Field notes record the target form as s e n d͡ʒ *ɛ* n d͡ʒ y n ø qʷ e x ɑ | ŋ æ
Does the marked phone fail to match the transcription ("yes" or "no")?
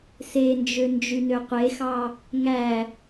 yes